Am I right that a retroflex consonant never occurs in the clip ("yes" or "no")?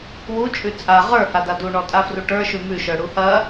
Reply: no